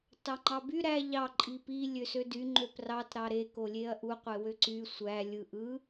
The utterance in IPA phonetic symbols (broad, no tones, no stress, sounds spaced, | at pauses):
t ɑ ŋ͡ǃ ɑ b y ɾ æ ʎ ɑ ǃʼ i p i lʲ ø s ø d y ŋ͡ǃ ø p r ɑ t ɾ ɑ ɾ e k o lʲ e ɐ̯ ʔ u qʷ e w ø ǀ y sʷ æ lʲ ɯ ʔ ɯ